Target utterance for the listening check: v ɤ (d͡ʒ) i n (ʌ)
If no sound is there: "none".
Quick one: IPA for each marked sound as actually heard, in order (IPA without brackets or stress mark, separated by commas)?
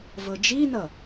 d͡ʒ, ʌ